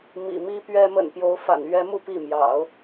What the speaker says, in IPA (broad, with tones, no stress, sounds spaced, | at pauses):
m ḭ˨˩ m i˥ p ɥ ɛ˥ m ə̰˨˩ n p j o˧˥ ʊ̯ f a̰˨˩ n ɥ ɛ˥ m u˥˧ p i˥˩ m j ɑ̰˨˩˦ ʊ̯